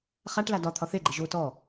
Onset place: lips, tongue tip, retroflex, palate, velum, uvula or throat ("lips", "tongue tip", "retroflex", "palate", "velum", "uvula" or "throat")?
uvula